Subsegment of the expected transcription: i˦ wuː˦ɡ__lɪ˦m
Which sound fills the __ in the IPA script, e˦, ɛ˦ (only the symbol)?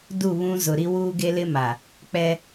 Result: e˦